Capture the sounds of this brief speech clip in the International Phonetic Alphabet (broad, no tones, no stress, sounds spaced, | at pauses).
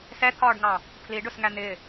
s ɛ t̪ʰ ɒː ɖ ŋ ɑ | pʰ l i ɖ ʊ s ŋ æ n̪ ɪ